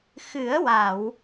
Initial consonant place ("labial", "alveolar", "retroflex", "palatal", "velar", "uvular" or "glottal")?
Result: velar